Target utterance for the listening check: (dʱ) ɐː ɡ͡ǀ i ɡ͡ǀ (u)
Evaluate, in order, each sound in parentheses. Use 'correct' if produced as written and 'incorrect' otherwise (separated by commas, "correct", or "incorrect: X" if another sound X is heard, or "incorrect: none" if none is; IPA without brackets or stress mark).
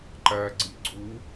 incorrect: ǃ, correct